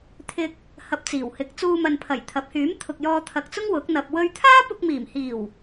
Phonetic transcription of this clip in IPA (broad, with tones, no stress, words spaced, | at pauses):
t̪ʰɪ˧k̚ | hɐ˧p̚t͡siː˨˩w hɪ˨˥k̚t͡suː˧mɐ˨npʰɐ˨˩j t̪ʰɐ˨˥p̚hyː˨˥m t̪ʰʊ˨k̚jɔː˧t̪ʰɐ˨k̚t͡sʊ˥ŋ wʊ˨˥k̚n̪ɐ˧p̚ wɵ˧ɥt̪ʰaː˥ pʊ˧k̚miː˨˩mhiː˨˩w